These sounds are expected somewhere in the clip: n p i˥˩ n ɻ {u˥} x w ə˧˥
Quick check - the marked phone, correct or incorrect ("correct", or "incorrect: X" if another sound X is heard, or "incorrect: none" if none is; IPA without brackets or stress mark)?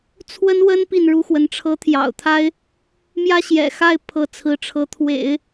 correct